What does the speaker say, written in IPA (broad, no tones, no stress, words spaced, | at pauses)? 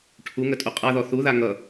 ʈʰuŋətʼu qʼaðɔ θuða ŋʌ